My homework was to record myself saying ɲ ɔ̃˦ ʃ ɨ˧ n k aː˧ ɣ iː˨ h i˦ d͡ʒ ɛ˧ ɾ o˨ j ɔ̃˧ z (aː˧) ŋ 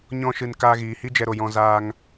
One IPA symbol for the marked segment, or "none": aː˧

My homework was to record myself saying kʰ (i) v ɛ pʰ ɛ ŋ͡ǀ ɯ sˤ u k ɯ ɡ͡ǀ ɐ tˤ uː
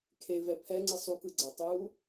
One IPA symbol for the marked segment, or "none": e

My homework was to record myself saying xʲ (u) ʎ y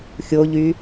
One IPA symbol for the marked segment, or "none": o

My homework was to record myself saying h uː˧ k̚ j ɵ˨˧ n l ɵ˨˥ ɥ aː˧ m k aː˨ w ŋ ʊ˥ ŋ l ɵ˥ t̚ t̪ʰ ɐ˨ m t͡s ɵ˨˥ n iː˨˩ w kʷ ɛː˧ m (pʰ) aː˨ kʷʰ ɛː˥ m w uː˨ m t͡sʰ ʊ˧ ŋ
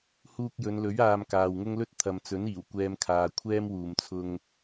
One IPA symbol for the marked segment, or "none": kʰ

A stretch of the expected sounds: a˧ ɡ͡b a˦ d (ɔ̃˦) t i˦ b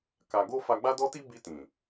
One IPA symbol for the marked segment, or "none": ɔ˦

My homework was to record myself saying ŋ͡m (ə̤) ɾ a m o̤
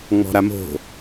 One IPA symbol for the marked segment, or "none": ɔ̤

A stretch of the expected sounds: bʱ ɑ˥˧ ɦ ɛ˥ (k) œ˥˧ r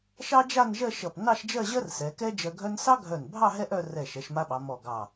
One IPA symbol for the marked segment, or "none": ʔ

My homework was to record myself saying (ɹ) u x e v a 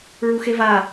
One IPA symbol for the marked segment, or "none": ɹ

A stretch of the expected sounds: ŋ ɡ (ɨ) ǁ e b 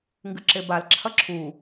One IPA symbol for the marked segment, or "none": ɨ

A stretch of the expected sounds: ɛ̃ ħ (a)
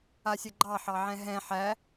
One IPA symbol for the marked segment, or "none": æ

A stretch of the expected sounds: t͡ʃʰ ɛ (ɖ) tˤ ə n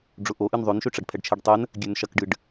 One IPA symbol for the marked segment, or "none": ɖ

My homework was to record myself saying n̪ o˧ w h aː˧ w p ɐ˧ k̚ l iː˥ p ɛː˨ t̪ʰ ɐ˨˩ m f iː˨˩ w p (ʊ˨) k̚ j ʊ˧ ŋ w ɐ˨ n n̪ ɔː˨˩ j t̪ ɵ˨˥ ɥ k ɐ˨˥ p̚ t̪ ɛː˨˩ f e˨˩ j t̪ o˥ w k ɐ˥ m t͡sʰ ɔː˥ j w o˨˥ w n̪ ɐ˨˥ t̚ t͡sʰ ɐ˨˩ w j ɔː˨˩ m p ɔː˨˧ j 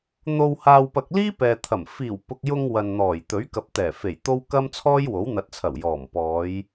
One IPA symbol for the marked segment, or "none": ʊ˨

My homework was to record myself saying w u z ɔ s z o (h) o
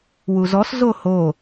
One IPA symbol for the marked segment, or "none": h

